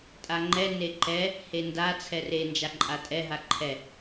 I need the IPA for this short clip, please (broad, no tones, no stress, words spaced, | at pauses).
tʼaŋ͡ǃɛ neǃɛ | henda t͡sʰɛre nd͡ʒaǃʼatʼɛ ɦaǃʰɛ